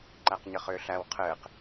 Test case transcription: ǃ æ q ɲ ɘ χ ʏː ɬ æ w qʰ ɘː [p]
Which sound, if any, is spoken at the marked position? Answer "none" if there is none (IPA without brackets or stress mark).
q